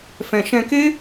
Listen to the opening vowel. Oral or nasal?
nasal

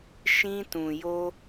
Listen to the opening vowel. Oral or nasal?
nasal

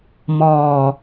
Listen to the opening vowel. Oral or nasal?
oral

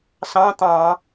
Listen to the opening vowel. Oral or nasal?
nasal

